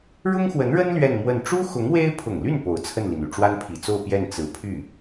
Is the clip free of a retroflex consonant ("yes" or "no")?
no